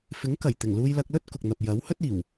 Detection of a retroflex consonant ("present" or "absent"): absent